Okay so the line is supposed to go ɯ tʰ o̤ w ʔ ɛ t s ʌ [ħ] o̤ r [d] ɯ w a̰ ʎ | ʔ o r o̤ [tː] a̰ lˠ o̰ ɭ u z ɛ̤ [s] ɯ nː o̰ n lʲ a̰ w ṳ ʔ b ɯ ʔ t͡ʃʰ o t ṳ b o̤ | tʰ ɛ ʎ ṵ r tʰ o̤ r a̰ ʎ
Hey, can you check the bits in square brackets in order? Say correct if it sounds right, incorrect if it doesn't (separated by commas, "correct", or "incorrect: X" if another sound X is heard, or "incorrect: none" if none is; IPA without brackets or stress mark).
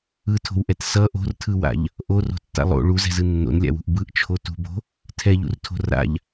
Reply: incorrect: ʔ, incorrect: tʰ, correct, incorrect: z